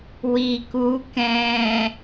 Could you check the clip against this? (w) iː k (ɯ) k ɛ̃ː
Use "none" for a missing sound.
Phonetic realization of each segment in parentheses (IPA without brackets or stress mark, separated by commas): w, u